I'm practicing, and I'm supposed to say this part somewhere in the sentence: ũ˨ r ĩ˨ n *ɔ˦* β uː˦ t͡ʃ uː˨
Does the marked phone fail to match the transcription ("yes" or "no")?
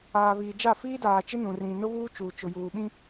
yes